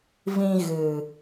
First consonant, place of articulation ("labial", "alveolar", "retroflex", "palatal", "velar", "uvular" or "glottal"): labial